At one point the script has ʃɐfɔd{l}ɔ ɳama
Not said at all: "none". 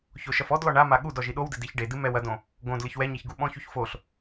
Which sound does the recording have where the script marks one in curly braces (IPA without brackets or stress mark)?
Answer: l